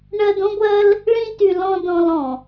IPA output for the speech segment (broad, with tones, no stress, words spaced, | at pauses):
ɳɜ˧dõ˦ɡʷɜ˦l | ɭĩ˧ty˨ lɔ̃˧ dɔ̃˧lɔ̃˨